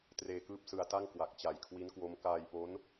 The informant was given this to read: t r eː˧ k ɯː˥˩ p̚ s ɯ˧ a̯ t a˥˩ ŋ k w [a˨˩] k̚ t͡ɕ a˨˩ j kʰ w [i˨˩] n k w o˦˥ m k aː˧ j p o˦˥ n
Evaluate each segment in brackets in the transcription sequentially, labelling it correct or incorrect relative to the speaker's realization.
correct, incorrect

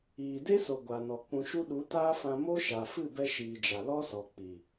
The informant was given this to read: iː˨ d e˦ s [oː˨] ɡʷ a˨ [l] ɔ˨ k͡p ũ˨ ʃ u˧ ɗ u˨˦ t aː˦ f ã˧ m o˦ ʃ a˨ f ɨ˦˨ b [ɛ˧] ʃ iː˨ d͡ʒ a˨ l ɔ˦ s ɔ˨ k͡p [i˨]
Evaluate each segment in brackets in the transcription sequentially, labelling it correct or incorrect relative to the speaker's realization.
incorrect, incorrect, correct, correct

